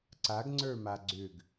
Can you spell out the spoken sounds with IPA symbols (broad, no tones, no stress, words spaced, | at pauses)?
ǀaɡŋ͡ǀə˞ma ɡ͡ǀʏɡ